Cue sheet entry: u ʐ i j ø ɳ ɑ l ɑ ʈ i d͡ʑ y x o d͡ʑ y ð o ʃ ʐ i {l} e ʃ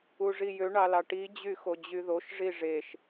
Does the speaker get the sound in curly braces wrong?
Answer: yes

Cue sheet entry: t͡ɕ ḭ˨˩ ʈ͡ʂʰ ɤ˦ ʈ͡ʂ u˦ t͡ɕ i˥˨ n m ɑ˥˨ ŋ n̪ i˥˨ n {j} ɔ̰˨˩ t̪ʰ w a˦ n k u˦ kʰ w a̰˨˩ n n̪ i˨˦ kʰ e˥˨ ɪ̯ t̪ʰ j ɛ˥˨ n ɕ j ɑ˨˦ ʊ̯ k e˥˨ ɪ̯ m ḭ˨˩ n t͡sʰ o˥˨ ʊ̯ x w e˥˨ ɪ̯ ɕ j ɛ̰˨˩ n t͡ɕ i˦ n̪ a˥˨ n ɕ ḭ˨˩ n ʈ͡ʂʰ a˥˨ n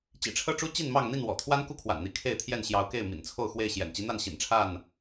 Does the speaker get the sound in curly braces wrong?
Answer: yes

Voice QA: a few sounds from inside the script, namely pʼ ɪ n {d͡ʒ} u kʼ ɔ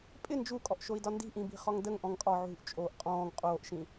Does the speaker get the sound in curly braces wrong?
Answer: no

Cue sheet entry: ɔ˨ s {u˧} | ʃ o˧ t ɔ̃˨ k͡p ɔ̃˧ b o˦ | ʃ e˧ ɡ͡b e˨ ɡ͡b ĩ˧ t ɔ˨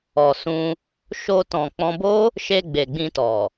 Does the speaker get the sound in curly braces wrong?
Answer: yes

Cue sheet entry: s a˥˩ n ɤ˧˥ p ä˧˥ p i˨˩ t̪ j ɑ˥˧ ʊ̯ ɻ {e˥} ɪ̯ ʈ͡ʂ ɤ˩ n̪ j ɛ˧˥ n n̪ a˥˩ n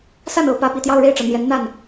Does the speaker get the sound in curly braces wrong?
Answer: yes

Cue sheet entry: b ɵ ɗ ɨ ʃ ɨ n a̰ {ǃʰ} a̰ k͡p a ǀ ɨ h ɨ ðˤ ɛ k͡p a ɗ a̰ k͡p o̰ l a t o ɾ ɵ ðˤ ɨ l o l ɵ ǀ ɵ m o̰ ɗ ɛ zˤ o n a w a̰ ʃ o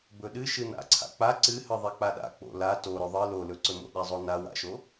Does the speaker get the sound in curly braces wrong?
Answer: yes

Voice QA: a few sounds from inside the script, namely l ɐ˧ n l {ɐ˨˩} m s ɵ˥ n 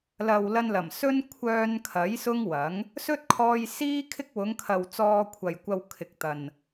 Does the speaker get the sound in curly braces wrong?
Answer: no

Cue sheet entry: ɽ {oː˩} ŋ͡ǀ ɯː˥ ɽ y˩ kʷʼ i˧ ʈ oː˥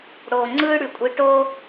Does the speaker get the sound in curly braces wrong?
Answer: no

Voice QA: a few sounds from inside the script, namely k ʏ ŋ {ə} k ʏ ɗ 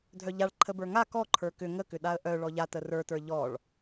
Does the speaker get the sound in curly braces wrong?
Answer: no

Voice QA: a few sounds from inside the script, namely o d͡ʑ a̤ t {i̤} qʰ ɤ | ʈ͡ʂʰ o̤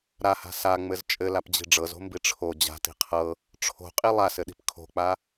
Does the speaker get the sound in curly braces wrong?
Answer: no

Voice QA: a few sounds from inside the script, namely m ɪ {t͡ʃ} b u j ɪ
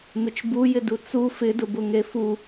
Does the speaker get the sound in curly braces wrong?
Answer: no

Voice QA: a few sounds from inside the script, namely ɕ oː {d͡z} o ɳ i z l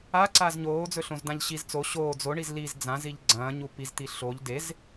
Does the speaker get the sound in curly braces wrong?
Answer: no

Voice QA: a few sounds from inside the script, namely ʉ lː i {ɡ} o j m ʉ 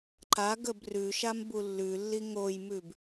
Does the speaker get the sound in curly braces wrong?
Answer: yes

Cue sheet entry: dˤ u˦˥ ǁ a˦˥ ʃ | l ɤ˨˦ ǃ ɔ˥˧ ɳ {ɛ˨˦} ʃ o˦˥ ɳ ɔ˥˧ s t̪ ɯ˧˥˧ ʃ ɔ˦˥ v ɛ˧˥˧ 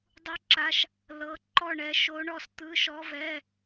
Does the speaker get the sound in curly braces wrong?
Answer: no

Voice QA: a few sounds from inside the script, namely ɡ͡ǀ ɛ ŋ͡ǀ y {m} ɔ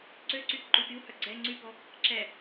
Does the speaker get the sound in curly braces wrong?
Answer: yes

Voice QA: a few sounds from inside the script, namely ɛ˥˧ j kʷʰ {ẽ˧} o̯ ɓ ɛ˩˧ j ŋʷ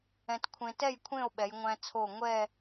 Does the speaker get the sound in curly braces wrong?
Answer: yes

